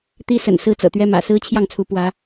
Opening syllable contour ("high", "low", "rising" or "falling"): high